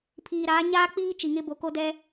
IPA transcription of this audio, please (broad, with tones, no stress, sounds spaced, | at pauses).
pʰ iː˨ ɾ aː˨˦ ɲ aː˦ k͡p iː˦ t͡ʃ i˨ ŋ ɪ˦ b o˨ k o˦ d ɛ˦